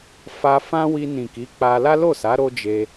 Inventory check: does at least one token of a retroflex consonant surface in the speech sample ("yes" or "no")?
no